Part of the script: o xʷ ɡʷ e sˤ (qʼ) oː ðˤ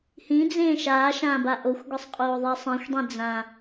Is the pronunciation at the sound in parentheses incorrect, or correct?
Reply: correct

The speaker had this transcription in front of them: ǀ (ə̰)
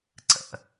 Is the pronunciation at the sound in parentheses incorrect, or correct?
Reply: correct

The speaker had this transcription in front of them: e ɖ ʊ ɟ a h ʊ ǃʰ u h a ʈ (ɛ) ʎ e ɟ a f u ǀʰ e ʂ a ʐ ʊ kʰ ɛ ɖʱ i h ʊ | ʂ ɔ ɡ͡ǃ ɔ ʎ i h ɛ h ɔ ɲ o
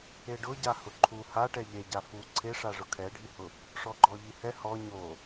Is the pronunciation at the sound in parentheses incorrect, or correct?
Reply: correct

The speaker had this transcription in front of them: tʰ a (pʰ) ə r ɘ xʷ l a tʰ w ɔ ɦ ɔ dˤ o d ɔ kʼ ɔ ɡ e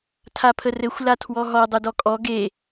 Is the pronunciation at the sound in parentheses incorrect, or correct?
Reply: correct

